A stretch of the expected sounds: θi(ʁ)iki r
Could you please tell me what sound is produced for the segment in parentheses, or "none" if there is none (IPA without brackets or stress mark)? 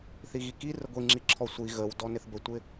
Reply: ɣ